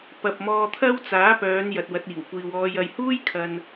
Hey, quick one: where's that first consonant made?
lips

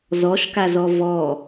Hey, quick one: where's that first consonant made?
tongue tip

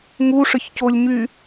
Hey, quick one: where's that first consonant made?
velum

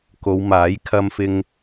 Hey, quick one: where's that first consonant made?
velum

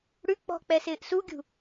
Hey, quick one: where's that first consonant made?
retroflex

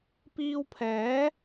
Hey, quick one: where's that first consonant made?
lips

